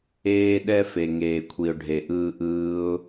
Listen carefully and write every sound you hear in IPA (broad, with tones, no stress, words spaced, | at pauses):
eː˧ɗɛ˧ fe˨ ŋeː˨kʷʰi˨ʊ̯ɖʱe˨ʔɯː˧ ʔɯː˦ʊ̯